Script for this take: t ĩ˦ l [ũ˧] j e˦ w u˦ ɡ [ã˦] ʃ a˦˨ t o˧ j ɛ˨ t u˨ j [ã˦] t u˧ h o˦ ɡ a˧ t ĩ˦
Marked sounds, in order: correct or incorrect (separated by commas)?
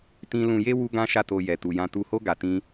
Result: correct, correct, incorrect